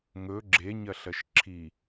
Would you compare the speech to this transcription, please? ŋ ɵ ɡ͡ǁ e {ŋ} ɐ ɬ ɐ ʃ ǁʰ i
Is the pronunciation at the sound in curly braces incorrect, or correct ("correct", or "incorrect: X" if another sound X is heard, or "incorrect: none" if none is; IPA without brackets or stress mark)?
incorrect: ɲ